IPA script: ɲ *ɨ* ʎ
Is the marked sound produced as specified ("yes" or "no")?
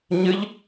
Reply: yes